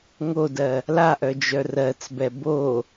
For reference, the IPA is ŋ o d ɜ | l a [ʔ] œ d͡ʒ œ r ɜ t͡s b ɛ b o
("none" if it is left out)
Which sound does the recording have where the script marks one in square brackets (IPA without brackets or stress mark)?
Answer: ʔ